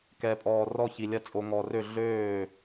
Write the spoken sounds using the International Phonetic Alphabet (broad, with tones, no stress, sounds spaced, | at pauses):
k ɛ˨ pʼ ɔː˨ r ɔ˥˩ ç i˨ lʲ ɐ˥˩ t͡sʼ o˨ ŋ ɔ˨ r ø˥˩ ɮ øː˥˩